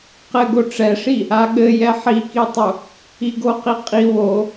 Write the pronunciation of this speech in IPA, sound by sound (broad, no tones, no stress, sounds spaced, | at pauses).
q ɘ ɡ o ʈ͡ʂ ɛ ʂ i | a ɠ ɘ j ɛ ħ i k i tˤ u | i ɡ o q i qʼ i w o